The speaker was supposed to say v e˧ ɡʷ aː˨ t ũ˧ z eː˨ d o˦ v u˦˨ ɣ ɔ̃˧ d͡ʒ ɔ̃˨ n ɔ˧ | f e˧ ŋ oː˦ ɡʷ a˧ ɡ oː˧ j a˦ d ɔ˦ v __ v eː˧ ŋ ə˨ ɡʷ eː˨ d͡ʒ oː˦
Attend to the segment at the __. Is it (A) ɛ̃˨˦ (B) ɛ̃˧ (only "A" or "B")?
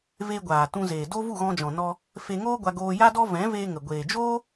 A